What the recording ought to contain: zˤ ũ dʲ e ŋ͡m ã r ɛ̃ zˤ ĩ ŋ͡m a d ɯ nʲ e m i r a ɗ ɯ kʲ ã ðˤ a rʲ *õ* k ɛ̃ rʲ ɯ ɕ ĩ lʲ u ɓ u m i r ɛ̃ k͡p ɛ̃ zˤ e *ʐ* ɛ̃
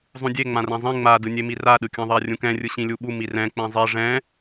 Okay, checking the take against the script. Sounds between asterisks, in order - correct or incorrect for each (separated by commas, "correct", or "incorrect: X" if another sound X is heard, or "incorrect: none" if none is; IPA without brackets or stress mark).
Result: incorrect: ũ, correct